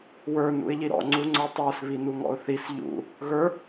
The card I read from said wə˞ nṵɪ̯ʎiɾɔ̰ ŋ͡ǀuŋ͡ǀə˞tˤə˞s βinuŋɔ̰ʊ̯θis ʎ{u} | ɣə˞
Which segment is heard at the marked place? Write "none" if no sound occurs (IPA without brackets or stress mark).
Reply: ṵ